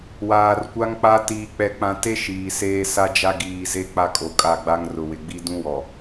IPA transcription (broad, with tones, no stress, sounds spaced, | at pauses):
w aː˨ r kʷ a˦ ŋ k͡p a˦ t iː˨ k͡p ɛ˨ k͡p ã˨ t e˦ ʃ iː˨ s eː˦ s a˦ d͡ʒ a˦ ɡ iː˨ z e˦ k͡p a˦ kʼ o˨ kʼ a˦˨ ɡ͡b a˦ ŋ r ʊ˨ w ɪ˨ ɡ͡b i˦ d ũ˦ w ɔ˨